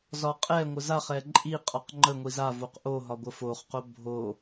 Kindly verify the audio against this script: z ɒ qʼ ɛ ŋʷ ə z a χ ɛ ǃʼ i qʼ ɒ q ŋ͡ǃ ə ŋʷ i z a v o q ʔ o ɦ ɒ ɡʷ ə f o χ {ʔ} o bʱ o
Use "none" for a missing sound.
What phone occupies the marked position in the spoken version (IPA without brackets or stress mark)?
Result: q